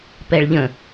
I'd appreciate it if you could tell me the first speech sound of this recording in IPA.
p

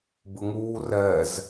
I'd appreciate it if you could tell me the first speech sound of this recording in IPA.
b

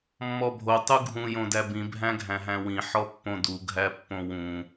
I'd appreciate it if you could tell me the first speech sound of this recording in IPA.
mː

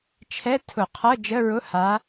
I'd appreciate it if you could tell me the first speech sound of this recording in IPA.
t͡ʃʰ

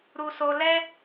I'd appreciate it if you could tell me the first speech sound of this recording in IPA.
ɾ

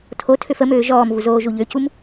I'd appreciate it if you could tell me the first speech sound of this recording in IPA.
tʰ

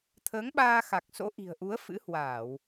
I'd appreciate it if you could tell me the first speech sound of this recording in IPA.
t̪ʰ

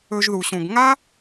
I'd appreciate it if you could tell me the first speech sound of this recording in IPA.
ɵ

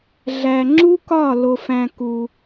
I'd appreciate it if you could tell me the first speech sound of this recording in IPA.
ɮ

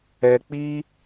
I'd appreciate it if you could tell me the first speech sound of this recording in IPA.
ɛ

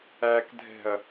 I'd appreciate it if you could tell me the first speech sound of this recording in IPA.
æ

